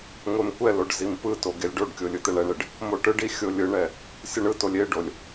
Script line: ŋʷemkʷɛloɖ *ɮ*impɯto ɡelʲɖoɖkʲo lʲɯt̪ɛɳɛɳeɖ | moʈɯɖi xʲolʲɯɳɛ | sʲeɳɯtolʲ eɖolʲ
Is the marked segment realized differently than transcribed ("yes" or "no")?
yes